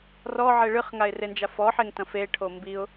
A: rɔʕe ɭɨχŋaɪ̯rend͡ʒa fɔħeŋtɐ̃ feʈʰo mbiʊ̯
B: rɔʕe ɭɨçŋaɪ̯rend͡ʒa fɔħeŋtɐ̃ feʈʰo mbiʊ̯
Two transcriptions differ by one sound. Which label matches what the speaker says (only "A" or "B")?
A